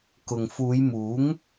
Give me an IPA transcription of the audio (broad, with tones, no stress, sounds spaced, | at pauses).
k ʊ˨ ŋ f uː˨˧ j m uː˨˥ ŋ